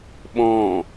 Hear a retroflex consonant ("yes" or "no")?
no